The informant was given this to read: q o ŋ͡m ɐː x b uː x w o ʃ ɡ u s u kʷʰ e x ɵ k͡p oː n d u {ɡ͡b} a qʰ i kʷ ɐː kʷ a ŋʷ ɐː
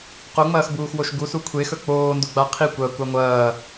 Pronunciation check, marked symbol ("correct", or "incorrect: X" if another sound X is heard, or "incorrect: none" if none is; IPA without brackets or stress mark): correct